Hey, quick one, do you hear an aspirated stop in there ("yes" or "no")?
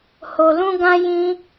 no